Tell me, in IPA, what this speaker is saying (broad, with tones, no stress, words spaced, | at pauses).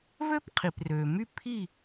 vø˥pqʰi˩prø˩ my˥˨ pʰi˥˨